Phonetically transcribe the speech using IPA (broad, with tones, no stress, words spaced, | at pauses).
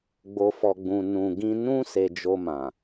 ɡ͡bo˨fɔ˨ɡ͡bũ˨ nũ˨ɡĩ˧ nũ˦ se˧d͡ʒo˧mã˨